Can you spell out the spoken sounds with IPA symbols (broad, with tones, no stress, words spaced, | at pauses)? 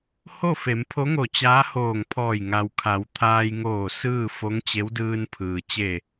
ho˥˨fe˩˧mpʰo˧˥ŋo˧˩ t͡ɕaː˧˥hoː˧˩ŋpʰɔː˧˩j ŋa˩wkʰa˩˧wt̪ʰaː˧j ŋoː˧˩ sɯː˥˨fo˧˥ŋ t͡ɕe˧˥wdɯː˧npʰɯː˩ t͡ɕe˧˩